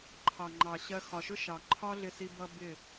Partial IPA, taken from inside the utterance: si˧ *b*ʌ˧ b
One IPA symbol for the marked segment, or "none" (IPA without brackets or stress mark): b